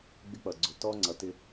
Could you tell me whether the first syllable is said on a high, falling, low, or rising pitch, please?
high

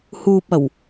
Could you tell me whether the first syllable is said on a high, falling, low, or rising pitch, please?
low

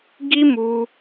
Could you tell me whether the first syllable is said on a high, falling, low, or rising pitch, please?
high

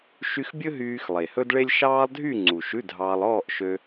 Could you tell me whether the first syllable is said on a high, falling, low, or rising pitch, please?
high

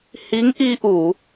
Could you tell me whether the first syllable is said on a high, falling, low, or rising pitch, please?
rising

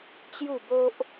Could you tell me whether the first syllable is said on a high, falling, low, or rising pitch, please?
falling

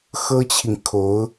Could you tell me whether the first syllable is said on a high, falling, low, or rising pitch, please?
high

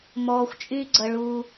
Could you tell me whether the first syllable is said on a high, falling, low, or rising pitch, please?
low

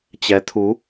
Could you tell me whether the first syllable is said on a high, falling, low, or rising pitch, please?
rising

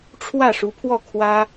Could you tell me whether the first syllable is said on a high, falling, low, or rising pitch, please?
falling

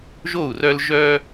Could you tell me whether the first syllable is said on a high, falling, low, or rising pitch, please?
falling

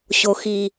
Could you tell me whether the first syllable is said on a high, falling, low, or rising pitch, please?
low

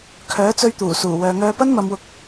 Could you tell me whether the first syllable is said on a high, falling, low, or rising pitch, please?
rising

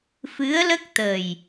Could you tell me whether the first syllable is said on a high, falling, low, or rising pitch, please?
rising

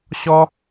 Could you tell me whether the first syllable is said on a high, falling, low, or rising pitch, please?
high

